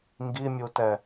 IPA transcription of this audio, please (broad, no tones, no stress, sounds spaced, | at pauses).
ŋ ɡ i mʲ u t ɛ